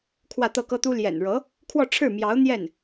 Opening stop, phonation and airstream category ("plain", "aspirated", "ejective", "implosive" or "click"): aspirated